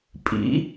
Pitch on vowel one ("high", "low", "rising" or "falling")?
rising